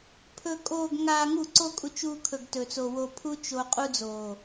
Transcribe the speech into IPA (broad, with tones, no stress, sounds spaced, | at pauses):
pʰ ɵ˨ kʼ oː˨ ɡ ŋ aː˨ ŋ u˦˨ ǀ o˦ kʼ u˧ t͡ʃ uː˧ kʰ ɵ˨ ɡ t ɵ˨ t͡s o˨ w o˨ pʰ u˧ t͡ʃ o˧ qʼ u˧ d͡z oː˨